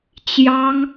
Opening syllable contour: high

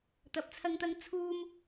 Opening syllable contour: low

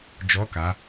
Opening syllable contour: rising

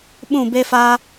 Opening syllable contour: falling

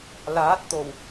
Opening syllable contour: rising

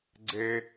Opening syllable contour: high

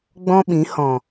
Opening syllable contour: high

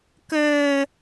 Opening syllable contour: low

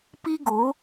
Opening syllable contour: high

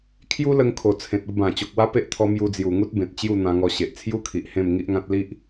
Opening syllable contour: high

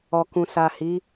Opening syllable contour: low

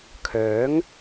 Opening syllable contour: rising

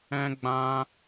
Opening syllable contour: high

